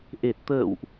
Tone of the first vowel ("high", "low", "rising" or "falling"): low